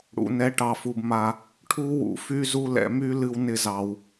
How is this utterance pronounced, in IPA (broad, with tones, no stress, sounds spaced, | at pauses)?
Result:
ɽ ṵ˨ n ɛ˨˦ ʈ ɑ˨ f u˨ b m a˧ | ʈʰ u˦ w ṵ˨ f y˦ z u˦ l ɛ̰˧ m y˦ l ɨ˦ w n ɪ˦ z ɑ˧ w